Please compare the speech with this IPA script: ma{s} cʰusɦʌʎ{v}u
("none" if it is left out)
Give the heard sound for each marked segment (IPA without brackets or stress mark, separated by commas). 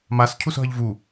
s, v